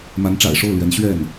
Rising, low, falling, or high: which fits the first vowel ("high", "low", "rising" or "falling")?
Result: rising